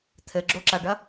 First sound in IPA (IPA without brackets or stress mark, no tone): t̪ʰ